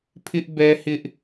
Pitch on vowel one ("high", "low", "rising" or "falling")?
high